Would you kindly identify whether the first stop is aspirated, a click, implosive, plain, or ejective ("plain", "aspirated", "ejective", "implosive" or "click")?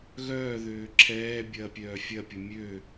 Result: click